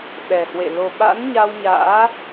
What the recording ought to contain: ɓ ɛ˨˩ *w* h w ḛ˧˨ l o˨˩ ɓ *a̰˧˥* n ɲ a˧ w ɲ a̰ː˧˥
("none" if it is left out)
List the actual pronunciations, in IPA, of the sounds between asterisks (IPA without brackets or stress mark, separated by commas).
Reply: none, a̰˧˥